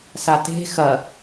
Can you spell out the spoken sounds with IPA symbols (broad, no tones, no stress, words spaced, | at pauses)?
sate̤ xɐ